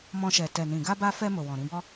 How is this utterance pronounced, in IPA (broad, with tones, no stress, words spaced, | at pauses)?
mɔ̃˧ʃɛ˨ tɛ˨nĩ˨ ɡa˧ba˧fɛ˧ mo˨wɔ̃˨ ɾĩ˧bɔ˦